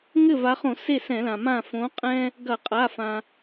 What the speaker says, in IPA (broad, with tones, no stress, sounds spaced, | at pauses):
ŋ ɘ˥˩ v a˨˦ χ õ˧˩˧ s e˥˩ s ɛ̃˧˩˧ l ã˩ m ã˥˩ f õ˨˦ qʼ ɛ̃˦ | ɡ ɐ˧˩˧ qʼ a˩˧˩ f ã˩